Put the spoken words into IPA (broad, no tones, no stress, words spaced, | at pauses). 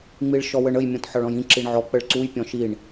ŋ͡miɭʃɔwəɳəj mʲɔ̃tħɒɭɔ̃jĩ ǁiɳʕɔ k͡pəɭǀuj pʲɔ̃ʃiɳ